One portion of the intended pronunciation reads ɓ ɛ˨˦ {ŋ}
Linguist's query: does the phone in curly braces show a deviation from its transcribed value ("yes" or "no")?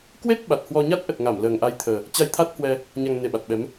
yes